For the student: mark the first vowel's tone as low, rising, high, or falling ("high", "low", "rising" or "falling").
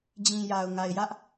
low